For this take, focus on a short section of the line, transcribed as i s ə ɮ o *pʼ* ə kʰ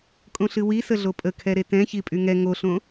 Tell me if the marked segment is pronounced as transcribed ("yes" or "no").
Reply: yes